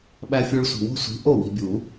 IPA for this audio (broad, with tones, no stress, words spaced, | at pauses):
ɓæ˦fʲo˦ɭsʷi̤˨ wo̤˦sʷi̤˨˥ ʔo˥˩wi̤˨bʲu˨˩˦